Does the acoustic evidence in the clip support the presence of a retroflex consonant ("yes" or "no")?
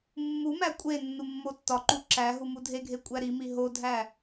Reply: no